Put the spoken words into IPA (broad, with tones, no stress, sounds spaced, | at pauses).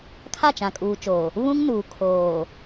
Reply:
kʰ a˦˨ t͡ʃ ã˨ kʼ uː˨ t͡ʃ oː˨ | β ũ˦ ŋ n uː˨ kʰ oː˨